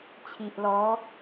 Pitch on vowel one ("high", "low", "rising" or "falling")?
low